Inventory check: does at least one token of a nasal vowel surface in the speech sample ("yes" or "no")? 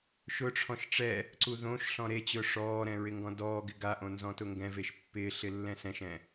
yes